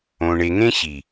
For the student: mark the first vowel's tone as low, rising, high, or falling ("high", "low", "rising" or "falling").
low